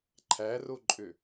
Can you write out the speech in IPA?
ǃʰ æ r o ǃʼ ø

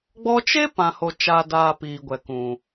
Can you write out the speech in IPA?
ɡ͡b ɔ˧ t͡ʃ e˦ p ã˨ h o˨ t͡ʃ a˨ d aː˨ p iː˨ ɡʷ ɛ˨ k ũ˨

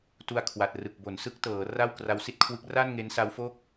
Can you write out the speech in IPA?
t u˧ a̯ kʰ w a˨˩ t̚ r ɯ˨˩ k̚ b o˩˦ n s ɯ˦˥ k̚ t ɤː˩˦ r a˥˩ w k r a˦˥ w s i˥˩ t̚ kʰ w ɯ˦˥ k̚ r a˥˩ n ŋ e˦˥ n s a˦˥ w f o˥˩ k̚

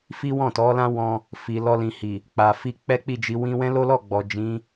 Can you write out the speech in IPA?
f i˦ w ɔ̃˦˨ t ɔ˨˦ l ã˦ w ɔ̃˧ | f i˨ l ɔ˧ l ĩ˨ h i˨ | k͡p a˨ f i˧ k͡p ɛ˦ k͡p i˦˨ d͡ʒ i˧ w ĩ˧ w ɛ̃˦ l o˦ l ɔ˦˨ ɡ͡b ɔ˨ d͡ʒ ĩ˨˦

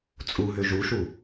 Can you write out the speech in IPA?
t͡sʼ u ɦ ø ʒ u ʃ u

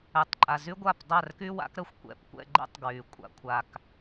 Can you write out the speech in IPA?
ɛ˨ tˤ ǃʼ a˨ z y˦ ɡʷ a˦˨ p dˤ a˦˨ r k y˦ w a̰˦ k ɾ ə˦ xʷ kʷ ɛ̰˨ p kʷ ɛ̰˦˨ ɡ͡ǃ ɛ̰˦ tˤ ɡ w y˨ kʷʼ a̰˨ kʷʰ a˨ k

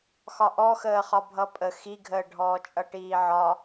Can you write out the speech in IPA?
x ɒ ʔ ɔ x əː χ ɒ bʱ ʌ pʼ ə x i ɡʱ əː ɖʱ ɔː t͡ʃʼ ʌ ʈ iː ʕ ɒ

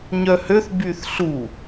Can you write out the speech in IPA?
ɲ œ h ø θ b y θ ɬ u

